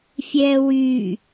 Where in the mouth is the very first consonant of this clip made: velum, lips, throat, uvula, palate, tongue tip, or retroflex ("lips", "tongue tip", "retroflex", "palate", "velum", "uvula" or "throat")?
lips